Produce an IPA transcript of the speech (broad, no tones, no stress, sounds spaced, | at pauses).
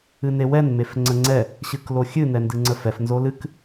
ɨ n e w ɛ n m e f ŋ͡ǀ ə ŋ͡ǀ ɛ | ɕ ɨ k l o xʲ ɨ n ɛ n d ɨ ŋ͡ǀ ə f ɛ f n z o l ɨ k